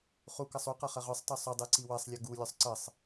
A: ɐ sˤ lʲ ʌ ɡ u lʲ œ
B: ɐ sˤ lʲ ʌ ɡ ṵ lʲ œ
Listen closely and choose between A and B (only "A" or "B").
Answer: A